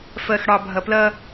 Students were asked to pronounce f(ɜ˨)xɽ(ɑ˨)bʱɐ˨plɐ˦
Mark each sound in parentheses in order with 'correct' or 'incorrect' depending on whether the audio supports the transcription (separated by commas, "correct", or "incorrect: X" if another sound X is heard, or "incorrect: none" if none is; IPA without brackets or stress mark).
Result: correct, correct